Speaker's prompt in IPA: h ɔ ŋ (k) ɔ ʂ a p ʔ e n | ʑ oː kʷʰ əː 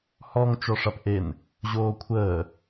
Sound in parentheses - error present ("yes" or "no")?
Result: yes